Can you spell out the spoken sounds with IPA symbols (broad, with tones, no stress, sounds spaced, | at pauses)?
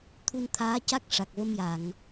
t̪ʰ u˧ n t̪ʰ aː˧˥ c a˦˥ k̚ ʂ a˨˩ k̚ v ə˧ m j a˨˩˨ ŋ